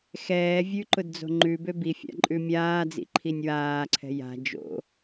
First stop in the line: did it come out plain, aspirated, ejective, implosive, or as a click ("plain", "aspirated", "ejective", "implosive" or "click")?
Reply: click